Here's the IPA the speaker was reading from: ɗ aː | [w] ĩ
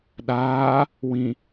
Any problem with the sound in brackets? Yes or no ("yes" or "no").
no